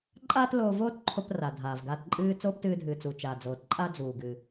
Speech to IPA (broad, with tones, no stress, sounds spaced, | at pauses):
ǃʼ aː˥ t l oː˧ v oː˥ t ǃʰ o˧ p r a˩ dʱ aː˩ v ɡ aː˧ t ǃʼ ɨː˧ t͡s oː˥ p t ɨː˧ dʱ ɨː˩ t͡s u˩ t͡ʃ a˩ d͡z oː˩ t ǃʼ a˥ d͡z uː˩ ɡ ɨ˩